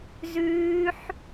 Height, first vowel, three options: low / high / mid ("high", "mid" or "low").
high